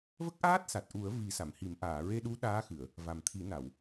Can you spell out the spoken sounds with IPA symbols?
v ə˦˥ k̚ ʔ aː˦˥ t̚ s a˨˩ t̚ ʔ u˨˩˦ ə̯ v i˨˩˦ s a˨˩˨ m h i˨˩˦ m ʔ aː˨˩˨ ɹ e˧ ɗ u˧˥ ɗ aː˧˥ x ɨ˨˩˨ ə̯ | v a˨˩ m t̪ʰ i˨˩˦ n a˨˩˨ w

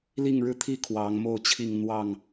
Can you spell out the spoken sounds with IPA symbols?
l i˥˨ ŋ ɻ ɻ̩˦ t̪ʰ i˥˨ kʰ w ɑ˨˦ ŋ m o˥˨ ʊ̯ t͡ɕʰ i˥˨ ŋ n̪ w ɑ˥˨ ŋ

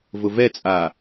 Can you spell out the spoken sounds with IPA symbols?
v ʊ v ɛ t͡sʼ a

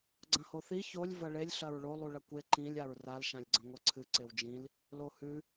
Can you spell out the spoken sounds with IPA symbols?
ɡ͡ǀ ɐ̃ h o θ i ç o lʲ v ɐ ɭ e lʲ ɬ ɐ ɹ ɭ o lˠ u ɭ ɐ kʷ e ǃ ĩ lʲ a ɹ r a l ʃ ã lʲ ɡ͡ǀ ɐ̃ ŋʷ ɐ ǀʰ ɨ ǀ e w d͡ʒ ĩ l | l o h ʉ

